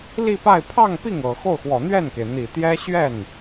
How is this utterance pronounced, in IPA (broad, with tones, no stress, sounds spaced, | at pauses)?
l i˥˧ p a˥˧ ɪ̯ pʰ ɑ˥˧ ŋ p i˥˩ ŋ ɤ˨˩ x o˥˩ ʊ̯ x w ɔ˨˩ n̪ ɥ ɛ˥˩ n k e˩ ɪ̯ n̪ i˨˩ t̪ j ɛ˥ ɕ ɥ ɛ˥˩ n